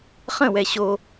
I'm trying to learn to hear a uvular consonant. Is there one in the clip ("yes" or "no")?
yes